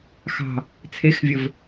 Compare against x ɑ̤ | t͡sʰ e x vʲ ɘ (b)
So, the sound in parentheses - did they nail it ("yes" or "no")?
no